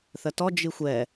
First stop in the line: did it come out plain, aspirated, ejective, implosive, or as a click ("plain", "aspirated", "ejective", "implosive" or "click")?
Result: plain